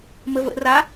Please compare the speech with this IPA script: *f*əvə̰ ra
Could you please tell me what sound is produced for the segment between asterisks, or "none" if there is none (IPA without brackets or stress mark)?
m